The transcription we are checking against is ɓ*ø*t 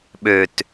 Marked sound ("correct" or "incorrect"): correct